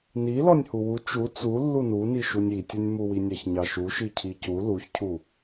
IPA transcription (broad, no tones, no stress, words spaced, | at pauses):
ni lɔnʲhuwu t͡ʃu t͡su lːununi ʃunʲitʲunʲmu winʲɑçɲɑʃu ʃicʰicu luçcʰu